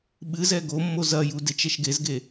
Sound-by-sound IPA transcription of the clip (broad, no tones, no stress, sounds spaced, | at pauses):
ɓ ɨ z ɛ ɡ o mː o z ɐ j u d e t͡ʃ ɛ ʃ ɡ e z ɡ e